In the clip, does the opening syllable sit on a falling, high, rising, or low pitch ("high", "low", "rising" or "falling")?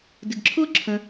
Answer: low